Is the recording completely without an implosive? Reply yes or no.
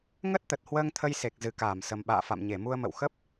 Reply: no